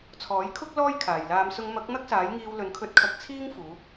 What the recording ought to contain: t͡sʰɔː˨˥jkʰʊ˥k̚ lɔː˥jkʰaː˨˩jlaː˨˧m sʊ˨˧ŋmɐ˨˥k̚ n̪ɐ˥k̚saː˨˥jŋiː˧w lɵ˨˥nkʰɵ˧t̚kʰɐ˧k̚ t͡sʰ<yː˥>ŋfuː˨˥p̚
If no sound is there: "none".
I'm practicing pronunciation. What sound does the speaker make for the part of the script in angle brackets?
iː˥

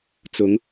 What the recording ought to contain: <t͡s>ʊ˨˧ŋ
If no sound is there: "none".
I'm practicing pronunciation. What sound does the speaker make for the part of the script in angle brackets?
t͡s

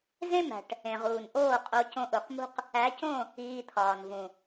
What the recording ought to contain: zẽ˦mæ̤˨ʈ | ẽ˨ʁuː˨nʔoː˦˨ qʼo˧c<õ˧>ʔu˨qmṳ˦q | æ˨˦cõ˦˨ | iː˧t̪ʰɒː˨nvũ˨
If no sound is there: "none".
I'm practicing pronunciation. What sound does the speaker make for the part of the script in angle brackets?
õ˧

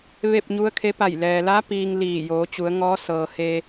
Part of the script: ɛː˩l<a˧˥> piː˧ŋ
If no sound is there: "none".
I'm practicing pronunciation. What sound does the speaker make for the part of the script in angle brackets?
a˧˥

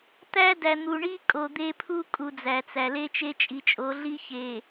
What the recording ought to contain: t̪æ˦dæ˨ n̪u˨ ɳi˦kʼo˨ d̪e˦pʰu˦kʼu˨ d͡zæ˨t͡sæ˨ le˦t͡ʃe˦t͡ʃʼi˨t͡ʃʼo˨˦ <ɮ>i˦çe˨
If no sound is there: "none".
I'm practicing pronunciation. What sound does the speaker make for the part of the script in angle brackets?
ɮ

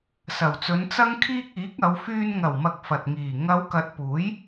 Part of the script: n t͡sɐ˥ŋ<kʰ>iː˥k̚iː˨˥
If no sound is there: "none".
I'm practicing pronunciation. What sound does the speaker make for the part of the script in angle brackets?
kʰ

